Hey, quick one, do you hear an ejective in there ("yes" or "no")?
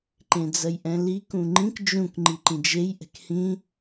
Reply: no